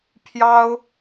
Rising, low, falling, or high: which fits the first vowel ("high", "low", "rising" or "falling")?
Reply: high